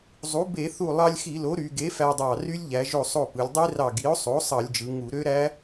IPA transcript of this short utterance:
zˤ u˩˥ b e˧˩˧ θ u˧˩ lˠ ɑ˧ lʲ x i˧˩˧ l o˩˥ ɾ y˩˧ ɡ e˩˥ f æ˧ dˤ ɑ˧˩ r y˦˥ lʲ ʎ æ˩˧ ʒ o˧˩ sˤ o˧˩ p ɯ˩˧ lʲ dˤ i˦˥ r ɑ˧˩ ɡ i˩˥ o̯ sˤ o˩˥ sˤ ɑ˧˩˧ lʲ d͡ʒ ɯ˩˧ ŋ u˧˩˧ ɾ ø˦˥ ɾ æ˦˥

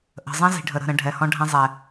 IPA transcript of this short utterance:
ʔ ə̤˨ zˤ ə̃˦ z i̤˨ ɖʱ ə˨ ɾ ə̤˦˨ ɾ ə̃˧ ɖʱ ɛ˨ h ɔ̃˧ ɖʱ ɛ̃˧ zˤ ɛ˨

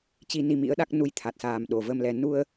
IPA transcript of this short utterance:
t͡ɕ i˧ n i˧ m ḭ˧˥ ə̯ ɗ a˦˥ k̚ n u˧ j t̪ʰ a˨˩ t̚ s aː˨˩ m ɗ o˨˩ v ə˧ m l ɛ˧ n u˧ ə̯

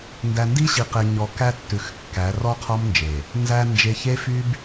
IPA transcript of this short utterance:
n d æ˨ n d i˦ ɕ i˨ q e˨ ɲ ɔ˨ k æ˦ tː ʉ˨ x kː æ˨˦ r ɔ˦ qʰ ɔ˦ m n d͡ʒ e˨ | n z æ˨ n d͡ʒ e˨ ç e˦ f y˦ b

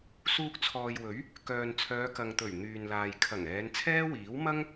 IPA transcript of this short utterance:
s uː˧ k̚ t͡sʰ ɔː˨ j w ɵ˨˥ ɥ | k œː˨ n t͡sʰ œː˨˧ k ɐ˨ ŋ t̪ ɵ˨˩ ɥ n̪ yː˨ n l aː˨ j kʰ ɐ˨˩ ŋ ɛː˨˧ n t͡sʰ ɛː˥ w iː˨˥ w m ɐ˥ ŋ

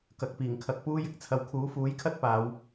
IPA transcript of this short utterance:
k ɐ˨ k̚ p iː˨˩ ŋ kʰ ɐ˨ k̚ p uː˥ j ɪ˥ k̚ t͡sʰ ɐ˨ w kʰ uː˨˥ f uː˨˥ j kʰ ɐ˥ t̚ p aː˨˧ w

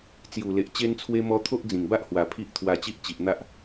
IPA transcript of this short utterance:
t͡s j u˨˩ l e˨ ʔ t͡ɕ e˧ n t͡sʰ w e˧ m ɔ˧ t̪ʰ o˦ ʔ d͡z ĩ˨˩ ŋ b a˦ ʔ h w a˨˩ pʰ i˦ ʔ t̪ʰ w a˧ t͡ɕ i˦ ʔ t͡ɕ i˨ ʔ n̪ a˦ ʔ

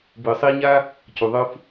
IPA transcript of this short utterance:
b ɯ˨ sˤ i˧ ɲ a˦ | c u˨ ðˤ ɯ˧ f

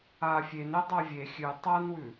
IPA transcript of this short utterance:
aː fʲ e n e dˤ a vʲ e xʲ ʉ tˤ a n w ʉ

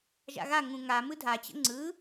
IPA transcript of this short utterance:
ʒ a̰ ɣ a ŋ ũ ŋ a m ɯ dʱ a t͡ɕ ə̰ ŋ͡ǀ ɯ

